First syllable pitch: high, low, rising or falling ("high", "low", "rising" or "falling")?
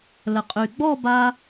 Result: low